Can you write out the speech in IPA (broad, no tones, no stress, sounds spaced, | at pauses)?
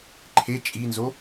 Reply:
ǃʰ e t͡ʃʼ i n z o